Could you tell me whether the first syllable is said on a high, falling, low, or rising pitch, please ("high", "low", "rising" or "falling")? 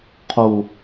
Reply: low